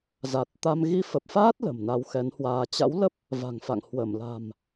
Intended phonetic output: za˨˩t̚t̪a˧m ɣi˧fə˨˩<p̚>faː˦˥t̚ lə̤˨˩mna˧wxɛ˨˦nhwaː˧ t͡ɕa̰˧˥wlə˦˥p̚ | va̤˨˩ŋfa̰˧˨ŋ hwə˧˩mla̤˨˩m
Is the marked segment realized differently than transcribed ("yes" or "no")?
no